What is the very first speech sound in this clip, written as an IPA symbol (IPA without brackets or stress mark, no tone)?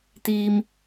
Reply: t̪